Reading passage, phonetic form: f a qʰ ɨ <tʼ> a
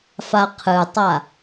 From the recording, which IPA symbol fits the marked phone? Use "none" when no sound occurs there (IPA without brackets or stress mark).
tˤ